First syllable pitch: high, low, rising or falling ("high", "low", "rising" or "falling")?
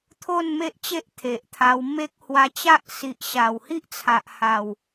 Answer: falling